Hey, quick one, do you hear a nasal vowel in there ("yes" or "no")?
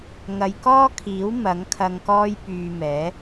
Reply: no